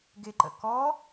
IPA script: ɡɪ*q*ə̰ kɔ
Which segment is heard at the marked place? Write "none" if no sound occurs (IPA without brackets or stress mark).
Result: ǃ